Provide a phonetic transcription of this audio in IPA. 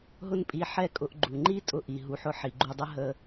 ɦ ʊ˥ n pʼ i˧ ħ ɛ˥ kʼ ʊ˧ ʔ ɡ͡ǃ u˩ ŋ͡ǃ i˥ tʼ ʊ˧ ʔ i˩ ɦ u˩ ħ ʊ˧ ħ i˩ ɡ͡ǃ u˧ dˤ ə˥ ɦ ə˧

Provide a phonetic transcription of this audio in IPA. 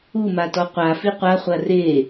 u m a t ɔ qʷ a f i qʷ a χʷ a r e

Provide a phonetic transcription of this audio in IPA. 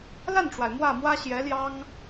l a˥˩ n ʈ͡ʂ w a˩ ɪ̯ m w ä˥˩ m w ä˥ ɕ j ɛ˧˥ l j ɑ˥ ŋ

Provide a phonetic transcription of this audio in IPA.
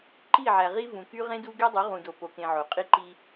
ǃ i˦˨ ʕ æ˨ ʁ i˦ v ũ˨ k y˦ ʁ ẽ˦ d u˦ ɡ e˦ dˤ y˨˦ ʁ ũ˨ d o˨ p o˨ k ẽ˨ ʕ o˨ qʼ i˦ ǃ i˦

